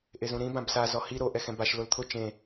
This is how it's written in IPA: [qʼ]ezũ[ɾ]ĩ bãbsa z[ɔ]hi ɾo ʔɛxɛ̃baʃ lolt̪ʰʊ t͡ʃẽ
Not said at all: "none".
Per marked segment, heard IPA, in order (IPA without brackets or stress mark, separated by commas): ʔ, ɾ, ɔ